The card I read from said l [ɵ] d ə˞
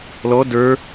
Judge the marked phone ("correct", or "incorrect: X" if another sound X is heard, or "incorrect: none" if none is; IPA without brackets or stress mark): incorrect: ɔ